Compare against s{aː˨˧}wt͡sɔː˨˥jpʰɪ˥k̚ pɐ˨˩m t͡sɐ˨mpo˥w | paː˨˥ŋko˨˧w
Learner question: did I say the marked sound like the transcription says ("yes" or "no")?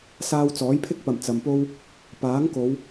no